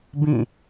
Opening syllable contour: falling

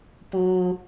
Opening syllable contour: low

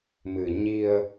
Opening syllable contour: low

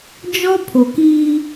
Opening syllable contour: high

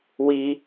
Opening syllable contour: high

